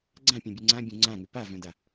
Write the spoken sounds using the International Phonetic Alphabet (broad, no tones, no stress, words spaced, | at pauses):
ɡ͡ǀãpʲœ̃bʲɛ ŋ͡ǀãbʲõ ŋ͡ǀãŋʏ pavœ̃da